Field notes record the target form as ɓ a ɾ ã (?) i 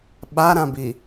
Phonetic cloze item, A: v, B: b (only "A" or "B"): B